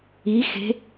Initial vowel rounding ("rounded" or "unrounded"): unrounded